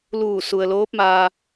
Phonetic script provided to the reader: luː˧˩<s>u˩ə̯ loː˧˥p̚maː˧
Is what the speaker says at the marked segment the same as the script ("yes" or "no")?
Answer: yes